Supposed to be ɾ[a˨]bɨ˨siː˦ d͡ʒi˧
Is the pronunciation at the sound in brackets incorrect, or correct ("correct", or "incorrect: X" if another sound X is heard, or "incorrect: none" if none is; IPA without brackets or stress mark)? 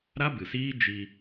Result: incorrect: a˦